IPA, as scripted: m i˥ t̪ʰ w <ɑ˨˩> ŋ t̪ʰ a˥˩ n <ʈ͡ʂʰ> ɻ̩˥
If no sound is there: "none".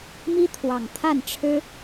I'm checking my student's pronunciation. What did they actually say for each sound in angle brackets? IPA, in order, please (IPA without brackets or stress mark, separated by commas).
ɑ˨˩, ʈ͡ʂʰ